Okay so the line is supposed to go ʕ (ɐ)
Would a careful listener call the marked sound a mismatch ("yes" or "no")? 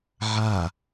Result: yes